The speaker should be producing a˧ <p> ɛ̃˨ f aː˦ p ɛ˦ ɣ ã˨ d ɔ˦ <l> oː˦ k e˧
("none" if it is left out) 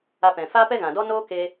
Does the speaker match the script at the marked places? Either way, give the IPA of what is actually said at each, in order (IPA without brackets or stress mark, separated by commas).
p, n